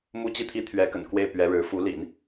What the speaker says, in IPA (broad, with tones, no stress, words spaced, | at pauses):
mu˥ t͡ɕi˥˩t̪ʰi˥t̪ʰɥɛ˧˥kə̰˨˩n kwe˥˩ɪ̯pɥɛ˧˥ɻɻ̩˧˥ fu˧˥lḭ˨˩˦n